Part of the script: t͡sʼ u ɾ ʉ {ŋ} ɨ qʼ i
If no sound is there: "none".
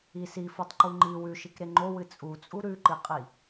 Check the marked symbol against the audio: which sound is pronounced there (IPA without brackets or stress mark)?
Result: ǃ